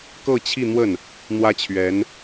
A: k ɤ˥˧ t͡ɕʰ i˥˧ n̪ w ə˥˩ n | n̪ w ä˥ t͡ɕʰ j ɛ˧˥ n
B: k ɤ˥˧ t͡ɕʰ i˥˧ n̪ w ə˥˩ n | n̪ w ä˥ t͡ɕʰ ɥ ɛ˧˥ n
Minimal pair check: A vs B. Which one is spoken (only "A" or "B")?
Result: B